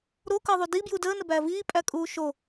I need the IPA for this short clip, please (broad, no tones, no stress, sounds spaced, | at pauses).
ɾ o k əː ðˤ u d i b j u d əː n ə b æ v iː pʼ æ kʼ uː ʃ o